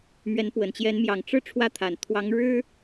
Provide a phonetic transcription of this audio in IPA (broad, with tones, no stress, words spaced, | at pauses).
mɥɛ˧˥npwə˨˩nt͡ɕjɛ˧˥n mjɑ˨˩ŋ ʈ͡ʂɻ̩˥˩ ʈ͡ʂʰwä˥t̪ʰa˨˩n t̪ʰwɑ˧˥ŋɻɻ̩˥